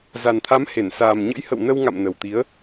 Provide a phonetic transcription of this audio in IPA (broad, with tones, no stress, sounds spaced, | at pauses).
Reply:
z a˨˩ n t̪ʰ a˨˦ m h e˧˩ n s aː˨˩ m ɲ ə̰˧˥ j h ə̰˧˨ w n ə˧ w ŋ a̰˧˨ m n ə˨˩ w t̪ i˨˦ ə̯